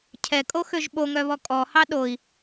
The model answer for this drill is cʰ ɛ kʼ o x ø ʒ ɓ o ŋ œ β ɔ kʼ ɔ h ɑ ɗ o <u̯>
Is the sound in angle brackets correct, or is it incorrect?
incorrect